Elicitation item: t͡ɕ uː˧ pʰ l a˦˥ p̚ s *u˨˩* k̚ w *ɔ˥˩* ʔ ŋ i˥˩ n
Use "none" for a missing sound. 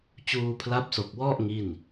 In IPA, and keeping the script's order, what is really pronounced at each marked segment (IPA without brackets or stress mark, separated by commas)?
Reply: o˨˩, ɔ˥˩